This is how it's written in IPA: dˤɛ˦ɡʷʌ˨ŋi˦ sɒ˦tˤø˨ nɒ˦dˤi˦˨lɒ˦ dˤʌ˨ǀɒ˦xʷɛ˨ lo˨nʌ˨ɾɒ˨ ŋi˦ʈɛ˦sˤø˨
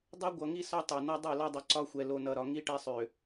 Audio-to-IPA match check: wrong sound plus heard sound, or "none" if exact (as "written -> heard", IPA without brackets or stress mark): none